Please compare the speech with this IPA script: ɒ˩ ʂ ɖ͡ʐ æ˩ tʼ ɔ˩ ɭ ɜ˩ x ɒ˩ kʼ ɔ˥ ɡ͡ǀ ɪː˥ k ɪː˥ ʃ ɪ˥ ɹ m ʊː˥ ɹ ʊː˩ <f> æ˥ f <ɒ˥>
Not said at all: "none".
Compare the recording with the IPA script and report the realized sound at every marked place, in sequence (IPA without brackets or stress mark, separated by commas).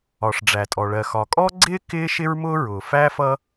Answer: f, ʌ˥